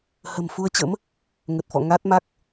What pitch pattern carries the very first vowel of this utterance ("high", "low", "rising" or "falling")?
low